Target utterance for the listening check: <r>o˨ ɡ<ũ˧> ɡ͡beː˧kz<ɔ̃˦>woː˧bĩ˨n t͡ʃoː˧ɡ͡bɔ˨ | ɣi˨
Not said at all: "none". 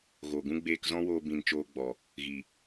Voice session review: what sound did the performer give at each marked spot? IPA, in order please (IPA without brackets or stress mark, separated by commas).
ɣ, ũ˦, ɔ̃˦